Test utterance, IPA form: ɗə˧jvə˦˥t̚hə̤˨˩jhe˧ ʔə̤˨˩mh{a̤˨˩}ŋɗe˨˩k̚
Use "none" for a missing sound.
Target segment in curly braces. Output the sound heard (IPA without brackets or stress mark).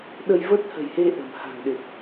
a̤˨˩